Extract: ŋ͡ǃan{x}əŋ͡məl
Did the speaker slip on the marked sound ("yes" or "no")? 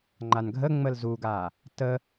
yes